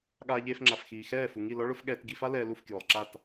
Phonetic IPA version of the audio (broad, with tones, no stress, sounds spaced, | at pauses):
ɠ aː˧ ʎ eː˧ f ŋ͡ǁ a˨ f x iː˨ x ɛː˦˨ f u˨ ŋ i˦˨ l ɔ˦ ɭ ʊ˦ f ɠ ɛː˧ t ɡ i˧ f a˦ l ɛː˧ l u˦˨ f k j ʊː˨ lˠ ǁ a˦˨ t